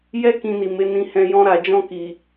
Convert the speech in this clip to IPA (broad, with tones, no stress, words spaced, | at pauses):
jɛ˦ kĩ˧ni˨me˨˦ nĩ˧hɛ̃˧ jɔ̃˧ɾa˨d͡ʒɔ̃˧ki˨